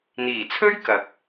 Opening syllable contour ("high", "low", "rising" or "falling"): low